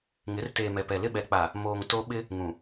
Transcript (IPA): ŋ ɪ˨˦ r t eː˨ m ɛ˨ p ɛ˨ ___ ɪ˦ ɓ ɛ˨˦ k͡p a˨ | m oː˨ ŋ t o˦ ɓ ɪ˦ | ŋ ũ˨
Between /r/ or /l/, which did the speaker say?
l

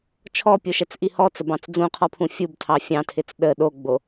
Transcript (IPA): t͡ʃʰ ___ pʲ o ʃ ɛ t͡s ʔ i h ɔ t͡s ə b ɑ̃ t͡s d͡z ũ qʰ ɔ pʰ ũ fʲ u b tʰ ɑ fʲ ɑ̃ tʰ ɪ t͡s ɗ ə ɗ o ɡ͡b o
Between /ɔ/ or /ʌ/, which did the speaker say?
ɔ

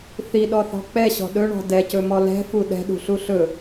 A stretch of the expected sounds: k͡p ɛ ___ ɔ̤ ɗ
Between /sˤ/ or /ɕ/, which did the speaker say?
ɕ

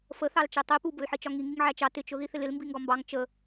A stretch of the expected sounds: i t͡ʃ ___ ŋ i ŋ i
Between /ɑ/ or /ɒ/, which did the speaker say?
ɒ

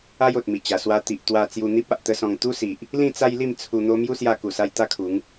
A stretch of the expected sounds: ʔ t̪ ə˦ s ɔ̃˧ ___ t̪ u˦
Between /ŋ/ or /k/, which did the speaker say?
ŋ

